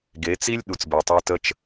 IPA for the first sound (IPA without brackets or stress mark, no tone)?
ɡ